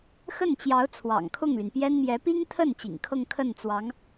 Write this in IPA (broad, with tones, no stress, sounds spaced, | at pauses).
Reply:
x ə˥˩ n t͡ɕ j ɑ˧˥ ʊ̯ t͡sʰ w ɑ̰˨˩ ŋ kʰ ʊ˥˩ ŋ l y˩ n p j ɛ˥ n m j ɛ˧˥ p i˥ ŋ t̪ʰ ə˥˩ n t͡ɕ ḭ˨˩ ŋ kʰ ɤ˥˧ ŋ kʰ ə˥˩ n t͡s w ɑ˧˥ ŋ